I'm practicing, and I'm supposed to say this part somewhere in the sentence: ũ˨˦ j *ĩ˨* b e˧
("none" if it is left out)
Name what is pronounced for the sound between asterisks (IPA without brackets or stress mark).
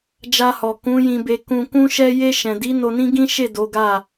ĩ˧